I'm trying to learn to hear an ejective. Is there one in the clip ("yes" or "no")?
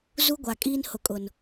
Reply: yes